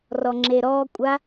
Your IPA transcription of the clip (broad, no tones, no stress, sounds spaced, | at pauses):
r ɔ ŋ͡ǁ e ɾ ɔ kʷʼ a